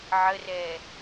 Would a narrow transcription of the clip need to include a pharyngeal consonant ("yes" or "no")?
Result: yes